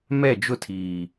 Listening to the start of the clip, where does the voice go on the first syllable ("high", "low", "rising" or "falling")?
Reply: falling